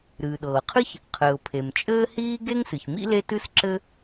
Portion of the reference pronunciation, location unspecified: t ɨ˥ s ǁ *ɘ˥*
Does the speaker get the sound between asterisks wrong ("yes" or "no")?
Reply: no